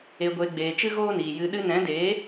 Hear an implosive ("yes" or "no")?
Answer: yes